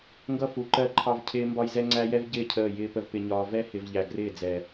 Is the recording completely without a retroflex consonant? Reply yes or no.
yes